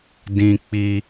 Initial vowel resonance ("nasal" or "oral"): nasal